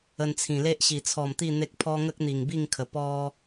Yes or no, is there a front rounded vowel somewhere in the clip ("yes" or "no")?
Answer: no